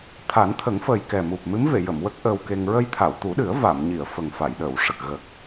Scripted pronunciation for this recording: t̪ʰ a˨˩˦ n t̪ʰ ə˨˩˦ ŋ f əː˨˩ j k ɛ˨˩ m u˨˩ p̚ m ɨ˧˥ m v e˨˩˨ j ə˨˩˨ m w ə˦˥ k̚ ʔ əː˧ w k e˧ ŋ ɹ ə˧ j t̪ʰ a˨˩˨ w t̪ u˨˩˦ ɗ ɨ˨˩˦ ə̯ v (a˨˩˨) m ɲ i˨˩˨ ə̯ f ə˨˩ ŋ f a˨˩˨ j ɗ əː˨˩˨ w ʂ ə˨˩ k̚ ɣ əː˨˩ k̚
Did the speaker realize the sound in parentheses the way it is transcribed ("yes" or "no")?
yes